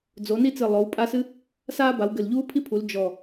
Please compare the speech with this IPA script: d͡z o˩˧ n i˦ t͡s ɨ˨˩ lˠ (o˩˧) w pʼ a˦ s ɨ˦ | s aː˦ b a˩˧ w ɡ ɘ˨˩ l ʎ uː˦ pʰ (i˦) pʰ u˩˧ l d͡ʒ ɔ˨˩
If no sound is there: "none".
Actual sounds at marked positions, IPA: o˩˧, i˦

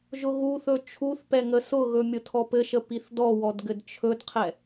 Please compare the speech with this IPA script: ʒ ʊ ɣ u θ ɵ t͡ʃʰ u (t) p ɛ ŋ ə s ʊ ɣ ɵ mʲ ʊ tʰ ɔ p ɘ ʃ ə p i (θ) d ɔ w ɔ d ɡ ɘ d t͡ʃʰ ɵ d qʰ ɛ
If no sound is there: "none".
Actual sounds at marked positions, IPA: θ, θ

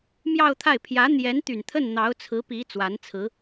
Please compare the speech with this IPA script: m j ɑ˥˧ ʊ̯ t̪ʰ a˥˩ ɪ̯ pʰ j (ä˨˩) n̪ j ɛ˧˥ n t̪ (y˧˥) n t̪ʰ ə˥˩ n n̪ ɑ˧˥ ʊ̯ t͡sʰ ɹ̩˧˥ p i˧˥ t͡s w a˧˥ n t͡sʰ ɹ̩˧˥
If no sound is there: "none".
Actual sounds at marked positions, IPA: ä˧˥, y˨˩

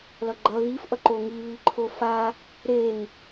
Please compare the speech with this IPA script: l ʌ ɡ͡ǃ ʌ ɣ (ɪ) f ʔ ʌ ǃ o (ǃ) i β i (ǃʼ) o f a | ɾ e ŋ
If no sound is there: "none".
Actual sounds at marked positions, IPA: i, ŋ, ǃʰ

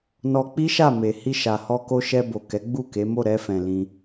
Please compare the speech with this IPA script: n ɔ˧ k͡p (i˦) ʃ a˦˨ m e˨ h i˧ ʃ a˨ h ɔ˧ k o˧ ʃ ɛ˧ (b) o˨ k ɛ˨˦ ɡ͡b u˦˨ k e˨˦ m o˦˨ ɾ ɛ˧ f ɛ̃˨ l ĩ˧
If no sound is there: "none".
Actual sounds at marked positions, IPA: i˦, b

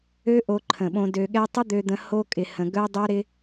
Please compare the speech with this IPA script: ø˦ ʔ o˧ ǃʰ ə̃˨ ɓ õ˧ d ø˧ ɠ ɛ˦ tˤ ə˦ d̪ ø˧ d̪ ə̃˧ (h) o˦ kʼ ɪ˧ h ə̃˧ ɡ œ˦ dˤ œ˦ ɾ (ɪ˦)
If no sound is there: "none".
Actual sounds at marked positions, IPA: h, ɪ˦

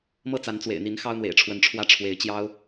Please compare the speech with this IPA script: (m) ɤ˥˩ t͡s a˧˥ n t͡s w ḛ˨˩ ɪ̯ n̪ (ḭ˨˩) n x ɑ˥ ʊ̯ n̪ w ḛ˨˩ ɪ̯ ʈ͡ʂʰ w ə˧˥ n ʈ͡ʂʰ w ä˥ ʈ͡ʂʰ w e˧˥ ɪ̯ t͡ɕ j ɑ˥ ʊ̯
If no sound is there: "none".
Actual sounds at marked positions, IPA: m, i˧˥

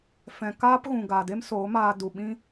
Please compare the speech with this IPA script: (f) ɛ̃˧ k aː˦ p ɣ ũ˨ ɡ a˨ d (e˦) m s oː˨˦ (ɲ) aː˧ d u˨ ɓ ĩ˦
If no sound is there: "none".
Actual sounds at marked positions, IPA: f, e˦, m

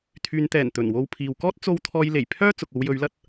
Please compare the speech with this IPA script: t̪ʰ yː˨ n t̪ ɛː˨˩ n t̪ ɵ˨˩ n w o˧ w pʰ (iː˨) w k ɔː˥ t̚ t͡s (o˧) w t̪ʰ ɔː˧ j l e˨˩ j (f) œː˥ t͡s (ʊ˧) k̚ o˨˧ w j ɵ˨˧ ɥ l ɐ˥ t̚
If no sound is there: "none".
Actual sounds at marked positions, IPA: iː˨, o˧, pʰ, ʊ˨

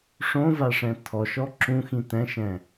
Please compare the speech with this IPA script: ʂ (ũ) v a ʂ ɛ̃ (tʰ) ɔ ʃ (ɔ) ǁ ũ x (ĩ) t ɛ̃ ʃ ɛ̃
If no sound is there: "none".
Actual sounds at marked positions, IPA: õ, tʰ, ɔ, ĩ

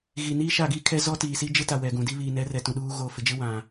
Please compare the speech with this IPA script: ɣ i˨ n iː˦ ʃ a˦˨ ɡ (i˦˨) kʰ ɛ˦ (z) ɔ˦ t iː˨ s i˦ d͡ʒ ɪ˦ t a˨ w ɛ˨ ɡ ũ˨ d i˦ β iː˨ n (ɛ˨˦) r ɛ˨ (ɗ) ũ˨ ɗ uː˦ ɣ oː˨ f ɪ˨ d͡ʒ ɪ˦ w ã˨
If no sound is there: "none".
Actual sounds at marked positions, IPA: i˦, z, ɛ˨˦, t

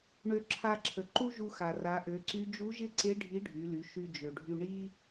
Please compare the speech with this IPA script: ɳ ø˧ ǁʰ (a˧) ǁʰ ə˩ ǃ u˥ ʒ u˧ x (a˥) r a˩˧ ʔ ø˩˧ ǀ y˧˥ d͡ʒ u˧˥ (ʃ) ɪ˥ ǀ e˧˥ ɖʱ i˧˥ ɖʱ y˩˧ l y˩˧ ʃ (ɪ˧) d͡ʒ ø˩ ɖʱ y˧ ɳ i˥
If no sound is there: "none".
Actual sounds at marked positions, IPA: a˧, a˩, ʒ, y˧

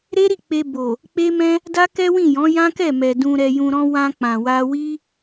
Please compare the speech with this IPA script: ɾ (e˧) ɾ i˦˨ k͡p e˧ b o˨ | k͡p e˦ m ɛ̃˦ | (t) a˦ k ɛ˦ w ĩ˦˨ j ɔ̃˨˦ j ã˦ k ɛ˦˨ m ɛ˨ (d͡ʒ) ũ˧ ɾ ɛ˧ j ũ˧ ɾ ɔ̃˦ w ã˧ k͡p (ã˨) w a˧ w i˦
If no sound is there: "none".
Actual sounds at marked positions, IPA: e˦, d, d, ã˨

